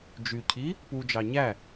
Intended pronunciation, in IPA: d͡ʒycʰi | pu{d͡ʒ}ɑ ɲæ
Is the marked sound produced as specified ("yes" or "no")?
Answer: yes